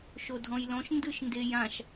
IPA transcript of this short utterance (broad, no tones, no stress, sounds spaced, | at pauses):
ʃ o dʱ ɔ̃ j l ɔ̃ ʃ n d ɯ ʃ n d e j ã ʃ